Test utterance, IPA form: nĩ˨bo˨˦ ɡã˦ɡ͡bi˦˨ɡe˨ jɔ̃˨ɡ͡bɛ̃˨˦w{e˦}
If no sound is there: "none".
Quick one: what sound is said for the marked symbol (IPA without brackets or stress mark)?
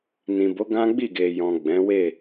e˦˨